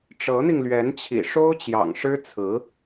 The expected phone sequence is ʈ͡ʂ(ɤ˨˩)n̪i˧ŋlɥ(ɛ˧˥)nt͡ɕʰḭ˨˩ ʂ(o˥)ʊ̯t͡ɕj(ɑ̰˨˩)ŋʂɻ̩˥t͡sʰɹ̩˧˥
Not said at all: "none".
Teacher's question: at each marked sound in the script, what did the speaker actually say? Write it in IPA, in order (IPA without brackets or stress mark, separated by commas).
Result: ɤ˧˥, ɛ˧˥, o˥, ɑ̰˨˩